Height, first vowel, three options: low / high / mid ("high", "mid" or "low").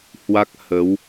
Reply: low